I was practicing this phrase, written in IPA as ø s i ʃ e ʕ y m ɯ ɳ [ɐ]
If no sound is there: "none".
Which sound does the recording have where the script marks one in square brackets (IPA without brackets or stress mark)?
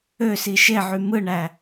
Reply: æ